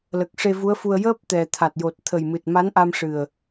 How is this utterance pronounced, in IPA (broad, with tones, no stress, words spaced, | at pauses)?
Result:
lə˨˩k̚ʂe˧vu˧˥ə̯fu˧ə̯ jəː˦˥p̚t̪ɛ˨˩ t̪ʰa˨˩t̚jo˨˩t̚ t̪ʰə˨˩jmɨ˨˩t̚ ma˧˥nʔa˧mʂɨ˨˩ə̯